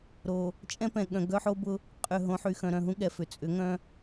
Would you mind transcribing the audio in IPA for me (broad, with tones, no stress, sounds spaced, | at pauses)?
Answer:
ɾ o˨ | t͡ʃʼ ɛ̃˦ p ɛ̃˨ ɠ œ̃˨ ɡ œ˦ ħ o˦ b ʊ˦ | qʼ ʏ˨ ɦ õ˨˦ ħ y˨ x œ̃˨ ɾ œ̃˨ ɦ ũ˦ ɠ ɛ˨ f ʏ˨ t͡sʼ ʏ˨˦ ŋ œ̃˦